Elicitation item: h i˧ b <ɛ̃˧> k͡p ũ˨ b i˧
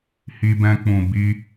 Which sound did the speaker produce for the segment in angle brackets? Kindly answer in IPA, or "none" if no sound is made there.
ɛ̃˧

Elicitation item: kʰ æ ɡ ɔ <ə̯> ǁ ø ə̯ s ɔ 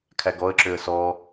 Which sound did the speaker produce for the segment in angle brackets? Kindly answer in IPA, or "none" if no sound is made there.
ə̯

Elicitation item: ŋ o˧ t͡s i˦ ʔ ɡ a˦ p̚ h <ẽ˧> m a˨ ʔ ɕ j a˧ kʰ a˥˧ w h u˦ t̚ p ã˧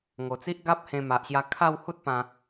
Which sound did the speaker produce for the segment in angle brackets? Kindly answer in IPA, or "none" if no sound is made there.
ẽ˧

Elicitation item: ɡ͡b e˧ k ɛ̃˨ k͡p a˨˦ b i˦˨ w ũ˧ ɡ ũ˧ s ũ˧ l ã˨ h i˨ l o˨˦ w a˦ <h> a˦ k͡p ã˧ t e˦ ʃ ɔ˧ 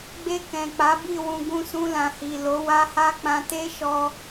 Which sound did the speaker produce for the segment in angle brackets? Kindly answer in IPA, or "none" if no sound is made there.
h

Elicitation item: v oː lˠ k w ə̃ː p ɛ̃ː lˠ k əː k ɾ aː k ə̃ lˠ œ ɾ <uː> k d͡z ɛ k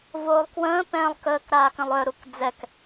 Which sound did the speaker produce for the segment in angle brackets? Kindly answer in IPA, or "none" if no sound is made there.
u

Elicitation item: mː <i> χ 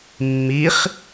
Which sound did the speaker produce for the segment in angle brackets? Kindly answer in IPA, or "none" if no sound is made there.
i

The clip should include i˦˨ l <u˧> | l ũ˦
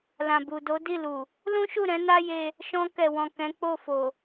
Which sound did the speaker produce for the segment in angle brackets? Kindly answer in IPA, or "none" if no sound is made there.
u˨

